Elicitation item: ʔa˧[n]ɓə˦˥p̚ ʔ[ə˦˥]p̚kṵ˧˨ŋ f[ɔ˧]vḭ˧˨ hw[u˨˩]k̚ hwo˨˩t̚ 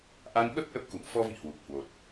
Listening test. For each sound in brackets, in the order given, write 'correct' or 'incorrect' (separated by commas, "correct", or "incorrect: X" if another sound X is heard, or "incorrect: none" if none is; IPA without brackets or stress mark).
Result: correct, correct, correct, correct